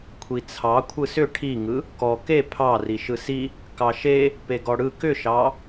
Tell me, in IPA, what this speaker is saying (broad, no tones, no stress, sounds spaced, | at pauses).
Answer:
kʷʰ i t͡sʰ ɑ kʷʰ ɯ s ʏ ʈʰ i ŋ ɯ | k ɔ k e pʰ ɑ r i ʃ ɯ s i | k ɑ ʃ e | p e ɡ ɔ ɽ ɯ k ʏ ʃ ɑ